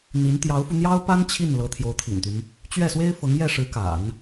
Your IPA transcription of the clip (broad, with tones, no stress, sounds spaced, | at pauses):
n̪ i˧˥ n t̪ j ɑ˧˥ ʊ̯ f u˧ n̪ j ɑ˥ ʊ̯ p a˥ n t͡ɕʰ i˥˩ n l ɤ˧˥ t̪ʰ j o˧˥ ʊ̯ t̪ʰ ḭ˨˩ n t̪ y˦ n | t͡ɕ ɥ ɛ˥˩ s w e˥ ɪ̯ f ɤ˧˥ ŋ j ɛ˥˩ ʂ ɻ̩˧˥ k a̰˨˩˦ n